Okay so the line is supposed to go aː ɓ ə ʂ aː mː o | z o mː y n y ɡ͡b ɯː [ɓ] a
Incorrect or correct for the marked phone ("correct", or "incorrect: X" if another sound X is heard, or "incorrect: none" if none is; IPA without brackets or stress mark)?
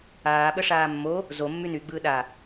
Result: incorrect: ɗ